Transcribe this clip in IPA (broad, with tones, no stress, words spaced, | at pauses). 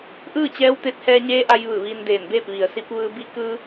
ʔɯː˥˨t͡ɕɛː˧˥wt̪e˧˥t̚ hɛː˧ɲeː˧˥ʔa˧j ʋɯː˧˩ʋiː˧ndeː˧˩nbeː˥˨p̚ ʋi˩ə̯si˧˥p̚ ʋɯː˧bi˧˥ kɯː˧